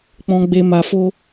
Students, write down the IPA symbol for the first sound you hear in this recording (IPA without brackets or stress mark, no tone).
k͡p